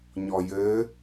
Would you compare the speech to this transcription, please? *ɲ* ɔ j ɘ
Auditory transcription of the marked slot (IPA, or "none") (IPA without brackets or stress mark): ɲ